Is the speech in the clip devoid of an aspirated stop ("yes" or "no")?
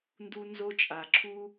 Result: no